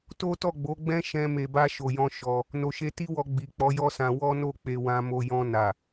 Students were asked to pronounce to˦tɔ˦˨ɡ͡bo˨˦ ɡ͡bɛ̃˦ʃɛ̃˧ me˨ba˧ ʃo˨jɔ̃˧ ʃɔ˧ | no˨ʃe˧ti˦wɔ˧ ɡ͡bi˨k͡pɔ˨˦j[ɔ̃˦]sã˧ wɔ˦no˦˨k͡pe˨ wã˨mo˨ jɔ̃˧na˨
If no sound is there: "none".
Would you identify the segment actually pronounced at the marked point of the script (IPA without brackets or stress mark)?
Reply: ɔ˦